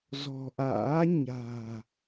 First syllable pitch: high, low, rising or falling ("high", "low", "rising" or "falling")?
low